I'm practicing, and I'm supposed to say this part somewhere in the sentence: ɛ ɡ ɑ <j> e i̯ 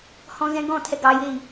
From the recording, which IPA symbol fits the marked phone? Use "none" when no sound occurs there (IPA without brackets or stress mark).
j